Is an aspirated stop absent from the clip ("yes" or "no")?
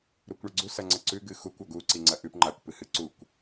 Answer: yes